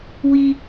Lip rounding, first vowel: unrounded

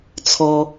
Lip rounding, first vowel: rounded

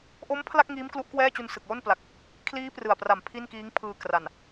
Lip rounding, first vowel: rounded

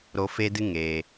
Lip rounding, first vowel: rounded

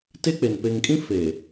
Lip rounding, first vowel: unrounded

